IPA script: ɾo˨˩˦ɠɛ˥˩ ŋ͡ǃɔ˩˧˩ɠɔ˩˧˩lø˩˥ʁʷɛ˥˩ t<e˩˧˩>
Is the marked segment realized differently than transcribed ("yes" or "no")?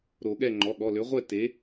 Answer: yes